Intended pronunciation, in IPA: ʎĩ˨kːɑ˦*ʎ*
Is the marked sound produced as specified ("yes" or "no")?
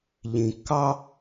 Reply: no